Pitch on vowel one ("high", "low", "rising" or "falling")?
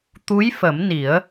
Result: rising